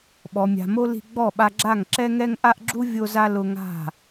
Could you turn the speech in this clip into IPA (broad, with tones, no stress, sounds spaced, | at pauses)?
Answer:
ɓ ɔ˨ mʲ a̤˨ m o˧ l i̤˧ ɡ͡b ɔ˦˨ ɓ a˧ ɡ͡ǁ a˦˨ ŋ ǁ ɛ˦ ŋ ɛ˦ ŋ ʔ a˦ ʔ ɡ͡ǁ u˦ vʲ o˧ z a˧ l ʊ˧ ŋ a̤˦˨